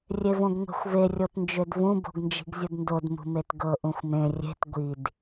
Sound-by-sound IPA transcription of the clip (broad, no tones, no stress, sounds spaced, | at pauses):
rʲ e v õ ɡ ŋʷ e̤ xʷ v e rʲ o t n d͡ʒ ø d v ũ b o̤ ɡ n d͡ʒ i̤ ɡ zʲ u d n d o d m ṳ m e t ɡ ɤ ʔ ũ xʷ m ẽ rʲ e̤ t ɡʷ i d